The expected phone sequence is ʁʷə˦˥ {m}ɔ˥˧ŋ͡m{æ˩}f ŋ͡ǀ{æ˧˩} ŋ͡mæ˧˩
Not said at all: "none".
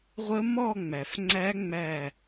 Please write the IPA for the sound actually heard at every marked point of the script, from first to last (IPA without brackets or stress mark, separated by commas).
m, æ˩, æ˦˥